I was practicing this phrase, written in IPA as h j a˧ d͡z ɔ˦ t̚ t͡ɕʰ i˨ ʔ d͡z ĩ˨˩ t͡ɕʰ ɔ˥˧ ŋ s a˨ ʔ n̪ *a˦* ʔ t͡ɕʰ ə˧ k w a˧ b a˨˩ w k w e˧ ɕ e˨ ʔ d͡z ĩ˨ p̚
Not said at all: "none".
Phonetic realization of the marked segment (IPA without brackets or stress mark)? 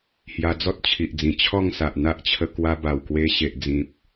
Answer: a˦